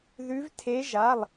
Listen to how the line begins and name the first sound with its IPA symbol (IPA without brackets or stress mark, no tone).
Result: ð